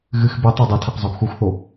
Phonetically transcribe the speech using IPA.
ɣ ɨ x b ɨ tˤ o dˤ o tʰ a q zˤ u ɡ x u x θ o

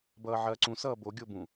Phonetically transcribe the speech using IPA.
b ʌː ʕ ɐː ǀ ũ s ʌː b o ɡʲ o b ũ

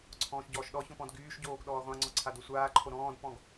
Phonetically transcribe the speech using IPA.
ǀʰ ɔ̃ː ʃ ɟ ɔː ʃ ɗ ɔ ç ɔ̃ p ɔ̃ d ɡ yː ʃ ɟ oː ɡ ɗ ɔː ʁʷ ã ŋ͡ǀ ɔ ǀʰ a d o sʷ aː ǃʰ o ɾ ɔ̃ː d p ɔ̃ ɡ

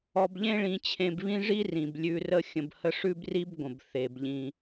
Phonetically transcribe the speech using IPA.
ɔ˧ b ʎ ẽ˥ ɭ ĩ˧ t͡ɕʰ ẽ˧ b β ĩ˥ ʐ i˥ r ĩ˩ b lʲ ʉ˧ r ə˥ xʲ ə̃˧ b h ə˥ ʂ ʉ˥ b r i˥ b ɡʷ ə̃˩ b θ e˩ b ʎ ĩ˩

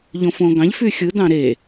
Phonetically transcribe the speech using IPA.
ʎ õ f õ ɡ ɑ̃ ʎ f y xʲ ɯ d ɑ̃ ɾ e

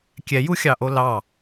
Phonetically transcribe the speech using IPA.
kʲ ɛ j u xʲ ɑ ʔ o l ɑ

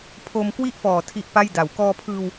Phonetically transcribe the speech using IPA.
pʰ o˧ m k w i˥˩ ʔ f ɔː˨˩ tʰ i˦˥ ʔ p a˥˩ j d a˨˩ w k ɔː˧ pʰ ɯː˧ w

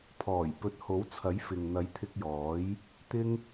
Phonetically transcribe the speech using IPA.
pʰ ɔː˨˩ j p ɵ˨˥ t̚ h o˨˥ w t͡sʰ ɐ˨˥ j f ɪ˨ ŋ n̪ ɐ˨˥ j t̪ʰ ɪ˧ k̚ j ɔː˨˥ j | t̪ ɪ˥ ŋ

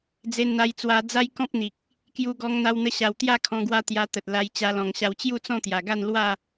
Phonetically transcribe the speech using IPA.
d͡z e˧ n n̪ a˧ j t͡s w a˧ d͡z a˦ j k ɔ̃˦ p̚ n̪ i˨ k̚ | k j u˧ ɡ ɔ˧ ŋ n̪ a˧ w n̪ ə˧ ɕ a˨˩ w t̪ j a˥˧ kʰ ɔ̃˧ ɡ w a˦ t̪ j a˧ t̪ ə˨ t̚ l a˧ j t͡ɕ a˧ l ɔ̃˨˩ ŋ ɕ a˧ w t͡ɕ j u˥˧ t͡s ɔ̃˥˧ t̪ j a˨˩ ɡ a˥˧ n l w a˥˧

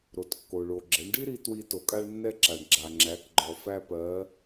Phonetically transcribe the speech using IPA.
ɾ o˩ t kː o˩ ɭ o˩ ɡ͡ǁ ɛ˩˧ ɳ ɖ i˥ ɾ i˧ t w i˧ t o˩ kʼ a˧ ɭ nː ɛ˧ ǁ a˩ ɳ ɡ͡ǁ a˩ ŋ͡ǁ æ˩˧ k ɡ͡ǃ ɔ˩ f æ˧ p ɜ˩˧

